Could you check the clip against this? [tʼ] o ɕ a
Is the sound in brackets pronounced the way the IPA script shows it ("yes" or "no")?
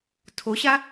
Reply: no